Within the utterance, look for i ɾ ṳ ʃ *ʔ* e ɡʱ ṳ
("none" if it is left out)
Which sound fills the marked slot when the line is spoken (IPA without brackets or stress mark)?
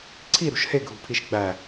h